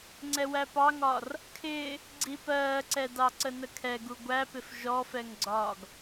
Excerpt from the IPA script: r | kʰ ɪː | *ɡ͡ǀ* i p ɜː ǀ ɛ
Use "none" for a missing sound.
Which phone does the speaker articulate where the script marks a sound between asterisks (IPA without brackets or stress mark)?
ɡ͡ǀ